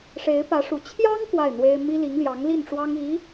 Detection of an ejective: absent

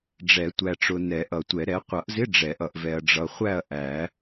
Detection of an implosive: absent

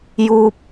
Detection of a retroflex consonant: absent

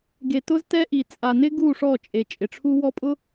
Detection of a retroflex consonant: present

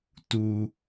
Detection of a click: absent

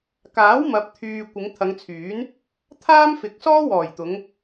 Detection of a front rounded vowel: present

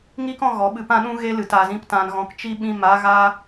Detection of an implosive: present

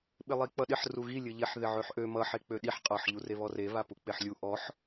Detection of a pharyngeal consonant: present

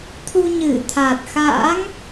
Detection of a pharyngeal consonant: absent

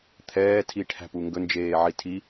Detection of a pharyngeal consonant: present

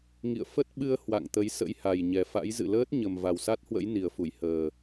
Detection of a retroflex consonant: absent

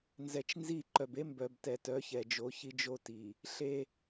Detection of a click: present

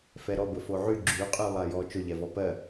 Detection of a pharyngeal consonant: present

